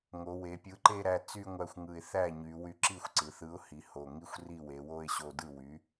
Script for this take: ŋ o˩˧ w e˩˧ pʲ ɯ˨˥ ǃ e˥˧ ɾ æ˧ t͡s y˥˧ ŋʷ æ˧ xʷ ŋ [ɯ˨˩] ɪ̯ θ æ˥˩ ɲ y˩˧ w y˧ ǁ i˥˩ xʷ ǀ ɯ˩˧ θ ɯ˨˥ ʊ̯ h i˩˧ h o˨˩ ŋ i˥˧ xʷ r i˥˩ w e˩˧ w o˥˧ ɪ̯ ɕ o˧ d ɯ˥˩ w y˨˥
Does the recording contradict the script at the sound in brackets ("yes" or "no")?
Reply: no